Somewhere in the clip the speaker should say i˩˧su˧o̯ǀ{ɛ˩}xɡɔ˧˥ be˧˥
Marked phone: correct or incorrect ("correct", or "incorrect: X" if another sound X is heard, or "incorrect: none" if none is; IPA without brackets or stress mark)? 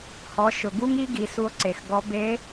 incorrect: e˩